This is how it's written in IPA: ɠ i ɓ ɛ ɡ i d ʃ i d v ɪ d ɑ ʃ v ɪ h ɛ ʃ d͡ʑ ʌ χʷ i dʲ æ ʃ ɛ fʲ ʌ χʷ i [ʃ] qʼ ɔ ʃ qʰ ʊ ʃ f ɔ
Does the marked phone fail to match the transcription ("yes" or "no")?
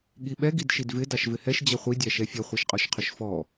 no